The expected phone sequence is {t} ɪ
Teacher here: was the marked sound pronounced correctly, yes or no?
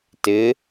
yes